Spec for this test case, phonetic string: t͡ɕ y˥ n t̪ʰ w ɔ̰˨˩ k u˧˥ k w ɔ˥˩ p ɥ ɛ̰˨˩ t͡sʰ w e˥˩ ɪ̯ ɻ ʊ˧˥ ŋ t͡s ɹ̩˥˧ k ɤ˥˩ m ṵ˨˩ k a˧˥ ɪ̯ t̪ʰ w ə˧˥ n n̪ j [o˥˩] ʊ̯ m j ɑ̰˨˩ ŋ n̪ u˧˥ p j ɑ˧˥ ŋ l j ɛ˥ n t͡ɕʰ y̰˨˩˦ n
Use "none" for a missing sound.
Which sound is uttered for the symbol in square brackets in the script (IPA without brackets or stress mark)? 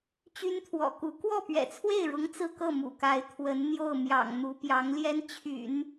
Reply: o˥˩